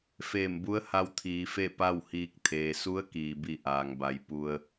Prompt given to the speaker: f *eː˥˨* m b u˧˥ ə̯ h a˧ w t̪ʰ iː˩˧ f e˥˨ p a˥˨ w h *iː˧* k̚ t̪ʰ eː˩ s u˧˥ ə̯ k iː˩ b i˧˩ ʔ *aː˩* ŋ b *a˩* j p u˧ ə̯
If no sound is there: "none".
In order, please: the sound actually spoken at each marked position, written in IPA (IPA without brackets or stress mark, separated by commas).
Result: eː˧˩, iː˧, aː˩, a˩˧